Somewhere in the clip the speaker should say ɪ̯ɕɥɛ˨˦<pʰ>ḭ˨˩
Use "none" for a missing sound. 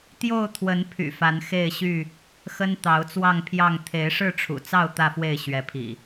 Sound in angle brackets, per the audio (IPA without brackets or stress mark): pʰ